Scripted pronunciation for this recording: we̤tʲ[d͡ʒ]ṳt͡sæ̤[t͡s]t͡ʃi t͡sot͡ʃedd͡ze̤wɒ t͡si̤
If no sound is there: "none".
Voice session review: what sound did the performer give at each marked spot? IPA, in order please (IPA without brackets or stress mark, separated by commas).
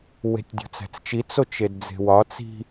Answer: dʲ, t͡s